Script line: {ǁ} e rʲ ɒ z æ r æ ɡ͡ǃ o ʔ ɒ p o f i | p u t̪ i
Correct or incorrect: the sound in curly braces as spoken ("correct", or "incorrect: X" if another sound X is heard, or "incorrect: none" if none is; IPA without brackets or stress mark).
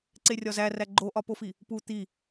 incorrect: ǀ